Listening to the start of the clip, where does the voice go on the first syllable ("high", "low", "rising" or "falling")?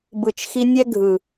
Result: low